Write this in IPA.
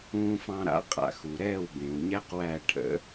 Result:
ũː˧ f ɑ̃˧ ɾ a̰˩˥ qʼ a̰˩ x u˩ ɾ ɛː˥˩ w b ẽ˩ w ɲ ɛ˥ q w æ˥˩ ʈʰ ə̰˩˥

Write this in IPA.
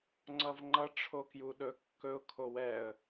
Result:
ŋ͡ǀ ʌ v ŋ͡ǃ ʌ ʈ͡ʂʰ o k j u ɗ ɵ kː ɵ ʊ̯ kʰ o w ɛ ə̯

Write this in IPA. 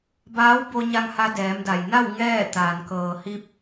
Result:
b aː˧˥ w b o˧ ɲ a˧ ŋ h a˧ d ɛː˩˧ m d a˩ j n a˥˨ w ŋ ɛː˥˨ t̪ aː˩ n k ɤː˩ h i˧ p̚

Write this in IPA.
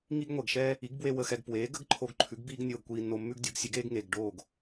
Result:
ŋ i˥ ɡ ŋʷ ɛ˩ ɡ ʃ ɛː˥ | i˩˥ ɡ b w e˧ w ə˧ x ɛ˧ ɡ p w eː˩˥ ɡ ə˥ ɡ ǃʰ o˧ ɡ ǃʰ ʉ˩˥ ɡ b iː˥ ɡ nʲ oː˧ ɡ kʷ iː˧ nː o˧ mː ʉ˥ ɡ dʲ o˩˥ ɡ sʲ ʉ˩˥ ɡ eː˥ ɡ ŋ eː˩ ɡ ɖ oː˥˩ ɡ

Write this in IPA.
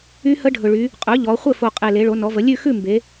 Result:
y˦˥ h ə˦˥ ɖʱ ɵ˨˩ ɭ y˩˧ | qʼ ɵ˩˥ ʎ ɔ˩˧ χʷ ɘ˥˨ f o˨˩ qʼ e˨˩ l e˩˧ ɭ o˩˧ n ɔ˩˧ v ə˩˧ lʲ ʉ˥˨ x ʉ˥˨ m b e˩˧

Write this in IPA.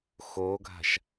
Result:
x o ɡʱ a̤ ʃ

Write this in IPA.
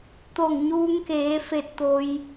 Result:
t̪ o˧˩ ŋ ɲ uː˧ ŋ k eː˩˧ f e˧ t̚ t̪ o˧ j

